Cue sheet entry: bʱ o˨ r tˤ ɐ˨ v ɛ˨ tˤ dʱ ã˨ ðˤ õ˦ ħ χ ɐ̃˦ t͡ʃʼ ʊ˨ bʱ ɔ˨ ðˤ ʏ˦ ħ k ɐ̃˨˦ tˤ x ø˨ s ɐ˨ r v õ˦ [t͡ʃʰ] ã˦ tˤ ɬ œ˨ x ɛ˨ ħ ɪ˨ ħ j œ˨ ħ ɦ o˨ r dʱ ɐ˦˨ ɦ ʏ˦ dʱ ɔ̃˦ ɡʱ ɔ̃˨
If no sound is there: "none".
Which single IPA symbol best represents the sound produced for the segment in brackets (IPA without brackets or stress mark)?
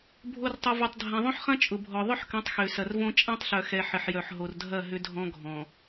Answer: t͡ʃʼ